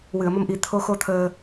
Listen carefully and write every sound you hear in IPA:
w ɨ˨˩˨ ə̯ m ə˧ m ʔ i˨˩˦ t̪ʰ o˧˥ x o˧˥ t̪ʰ əː˧

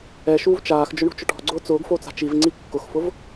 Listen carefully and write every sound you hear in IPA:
ɛ ʃ uː v t͡ʃ aː x d͡ʒ ʊ ɳ ṳ t͡ʃ ʊ ʈ ɔ̤ ɡ͡ǀ ʊː t͡s ʊː ɡ f o t͡s a̤ t͡ʃ i v ŋ͡ǀ i kː ʊ x f ʊ v

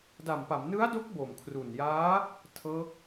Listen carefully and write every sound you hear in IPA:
d a˨˩ m p a˩˦ m n ɯ˦˥ a̯ d o˦˥ k̚ b o˨˩ m kʰ r u˨˩ n j aː˦˥ | tʰ ɤː˦˥ k̚

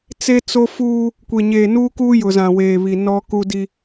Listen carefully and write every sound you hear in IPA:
t͡s e˦ t͡s o˦ f uː˦ | kʷ e˨ ɲ eː˨ n uː˦ k uː˦ j ʊ˨ z ã˨ w eː˨ β i˨ n ɔ˦ k u˦ d i˦

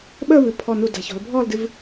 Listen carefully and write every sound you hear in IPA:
ɓ əː˥˧ β ɨ˩˧ pʰ ɔ˧˩ n u˧˩ d a̤˩˧ ç ɔ̤˩˧ l bʱ ɔː˥˧ l d ɨ˧ v

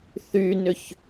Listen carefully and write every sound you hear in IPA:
θ y n ʏ ç

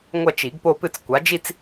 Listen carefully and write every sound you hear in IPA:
ŋʷ ɐ˥˧ t͡ʃ i˨˩˦ ɡ p o˥˧ p ɨ˥˧ t͡s kʷ a˨˥ d͡ʒ i˥˧ t͡s

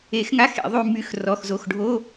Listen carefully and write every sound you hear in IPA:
e˨˩˦ x ŋ a˧˥˧ x ḛ˨˩˦ ðˤ y˦˨ m y˦˨ x r ɔ˩˧˩ x z o˩˧˩ x ɖʱ o˧˥˧

